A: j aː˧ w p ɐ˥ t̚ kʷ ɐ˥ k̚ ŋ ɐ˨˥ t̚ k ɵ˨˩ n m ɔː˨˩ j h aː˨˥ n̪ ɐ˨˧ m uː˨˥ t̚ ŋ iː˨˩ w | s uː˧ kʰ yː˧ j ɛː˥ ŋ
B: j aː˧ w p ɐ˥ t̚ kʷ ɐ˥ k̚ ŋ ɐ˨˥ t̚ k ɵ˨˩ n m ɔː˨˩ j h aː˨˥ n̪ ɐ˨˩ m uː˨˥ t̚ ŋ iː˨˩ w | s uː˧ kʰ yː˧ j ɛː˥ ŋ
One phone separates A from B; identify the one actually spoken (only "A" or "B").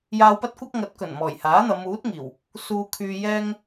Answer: A